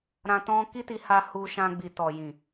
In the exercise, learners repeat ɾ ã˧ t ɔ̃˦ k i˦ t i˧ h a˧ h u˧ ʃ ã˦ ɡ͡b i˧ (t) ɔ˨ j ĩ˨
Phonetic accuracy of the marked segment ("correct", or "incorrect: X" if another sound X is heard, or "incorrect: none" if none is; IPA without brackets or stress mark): correct